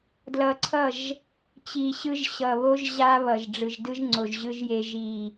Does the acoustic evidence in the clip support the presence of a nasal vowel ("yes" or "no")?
no